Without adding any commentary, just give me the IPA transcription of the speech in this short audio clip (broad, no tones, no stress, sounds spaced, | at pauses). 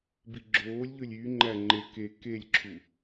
b i ɡ͡ǁ oː lʲ ʎ ɵ lʲ y ŋ͡ǃ æ ŋ͡ǃ e k e k e lʲ ǁʰ u